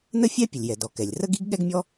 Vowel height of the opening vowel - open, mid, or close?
mid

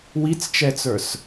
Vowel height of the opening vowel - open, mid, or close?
close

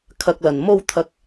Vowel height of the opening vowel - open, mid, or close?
open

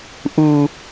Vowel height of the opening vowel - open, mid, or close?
close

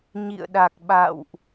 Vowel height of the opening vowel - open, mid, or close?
close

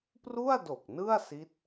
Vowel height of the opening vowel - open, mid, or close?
close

